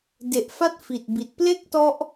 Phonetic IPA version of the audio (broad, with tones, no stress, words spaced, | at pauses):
de˨˩ʔ fa˥˩t̚ fi˨˩t̚bi˨˩t̚ ple˥˩k̚tɔ˦˥ʔ